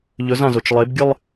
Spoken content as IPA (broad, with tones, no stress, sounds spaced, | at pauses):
ʎ ɵ˩˥ z ã˩ z o˩ t͡ʃ lˠ e˩˥ b ɡʲ ɨ˥˧ lˠ